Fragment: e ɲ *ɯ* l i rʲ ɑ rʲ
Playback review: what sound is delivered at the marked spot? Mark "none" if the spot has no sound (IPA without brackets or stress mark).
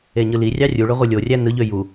ɯ